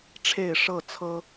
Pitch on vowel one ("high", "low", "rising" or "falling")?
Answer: low